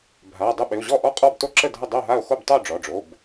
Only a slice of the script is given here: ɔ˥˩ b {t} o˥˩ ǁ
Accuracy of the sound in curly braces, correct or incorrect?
correct